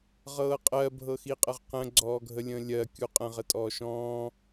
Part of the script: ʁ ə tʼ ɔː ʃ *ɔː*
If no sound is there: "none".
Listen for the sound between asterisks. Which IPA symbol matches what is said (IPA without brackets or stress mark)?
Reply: ɔ̃ː